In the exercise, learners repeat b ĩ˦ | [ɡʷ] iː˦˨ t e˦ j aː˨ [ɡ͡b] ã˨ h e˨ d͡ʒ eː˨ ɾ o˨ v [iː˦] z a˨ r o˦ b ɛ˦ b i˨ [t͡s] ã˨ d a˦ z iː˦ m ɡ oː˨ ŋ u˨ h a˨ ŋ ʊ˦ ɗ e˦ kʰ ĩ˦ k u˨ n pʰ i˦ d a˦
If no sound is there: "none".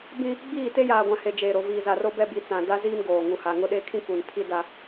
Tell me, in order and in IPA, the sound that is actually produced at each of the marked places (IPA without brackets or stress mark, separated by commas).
ɡ͡b, ɡʷ, iː˨, t͡s